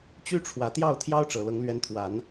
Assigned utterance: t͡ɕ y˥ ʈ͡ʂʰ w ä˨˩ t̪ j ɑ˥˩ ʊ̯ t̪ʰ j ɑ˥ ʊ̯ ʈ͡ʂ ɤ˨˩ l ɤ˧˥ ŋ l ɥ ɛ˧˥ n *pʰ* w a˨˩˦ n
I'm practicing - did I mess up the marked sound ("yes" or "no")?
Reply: yes